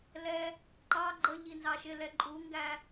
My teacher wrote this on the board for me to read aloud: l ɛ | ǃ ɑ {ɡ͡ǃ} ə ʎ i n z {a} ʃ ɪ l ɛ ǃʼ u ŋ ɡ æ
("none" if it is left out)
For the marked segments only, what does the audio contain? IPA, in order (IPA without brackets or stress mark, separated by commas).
ɡ͡ǃ, ɑ